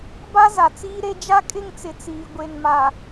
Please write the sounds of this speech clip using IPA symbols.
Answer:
ba˦ za˨ t͡siː˦ɾe˦ d͡ʒa˦kʼɪ˦˨ŋt͡sɪ˨ t͡siː˨ ɡʷe˨nmaː˨

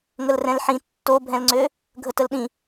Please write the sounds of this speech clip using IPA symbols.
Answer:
ŋəlrɛ̃lħĩ tːobʱɛ̃lŋ͡ǀø | ɡʱətəlɗĩ

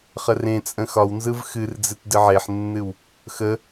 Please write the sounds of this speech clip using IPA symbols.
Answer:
χərẽt͡sʼə̃ xɒwnzɯv xɨrd͡zɨt dɨʕeħnːɨw | xə

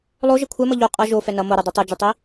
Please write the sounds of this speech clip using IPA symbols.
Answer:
lˠo ʒʌkʷʰɛmʌ ʎo qʼʌ ʒo fɛnʌ moɾɯ dˤɛtˤud͡ʒɯtˤi

